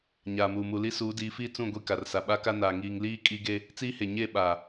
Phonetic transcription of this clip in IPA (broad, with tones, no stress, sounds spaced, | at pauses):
ɲ aː˨ m uː˨ m u˨ l i˦ s uː˨˦ d iː˨˦ f iː˦ t͡s ũ˦˨ ɡʷ i˦˨ k a˨ r s a˨ ɓ a˦ k a˦ n aː˨ ŋ iː˦ ŋ l iː˦ kʼ i˦ ɡ e˦ | t͡s iː˦ h e˨ ɲ e˦˨ ɓ aː˨